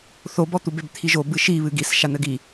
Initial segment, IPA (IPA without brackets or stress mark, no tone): θ